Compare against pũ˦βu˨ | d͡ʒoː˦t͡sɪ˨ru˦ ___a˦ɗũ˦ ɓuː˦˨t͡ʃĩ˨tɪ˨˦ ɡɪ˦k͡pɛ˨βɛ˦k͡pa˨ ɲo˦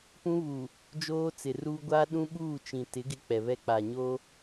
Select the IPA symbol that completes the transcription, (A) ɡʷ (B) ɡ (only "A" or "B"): A